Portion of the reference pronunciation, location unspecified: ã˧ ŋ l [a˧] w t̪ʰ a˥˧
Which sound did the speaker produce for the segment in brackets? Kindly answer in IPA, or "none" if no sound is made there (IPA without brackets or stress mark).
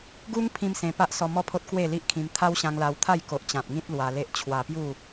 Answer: a˧